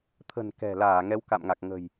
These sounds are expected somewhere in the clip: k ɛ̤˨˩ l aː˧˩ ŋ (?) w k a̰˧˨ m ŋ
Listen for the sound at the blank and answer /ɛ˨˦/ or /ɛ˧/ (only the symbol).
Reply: ɛ˨˦